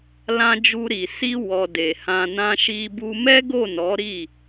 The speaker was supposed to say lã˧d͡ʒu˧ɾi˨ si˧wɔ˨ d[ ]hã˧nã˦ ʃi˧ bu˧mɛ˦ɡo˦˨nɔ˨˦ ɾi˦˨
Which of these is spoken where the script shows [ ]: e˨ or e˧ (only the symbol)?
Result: e˨